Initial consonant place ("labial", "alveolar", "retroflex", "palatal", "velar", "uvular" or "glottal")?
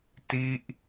alveolar